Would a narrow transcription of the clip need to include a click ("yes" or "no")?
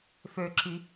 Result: yes